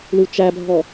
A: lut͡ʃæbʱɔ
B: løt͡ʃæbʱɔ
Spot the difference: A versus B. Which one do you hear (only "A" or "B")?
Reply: A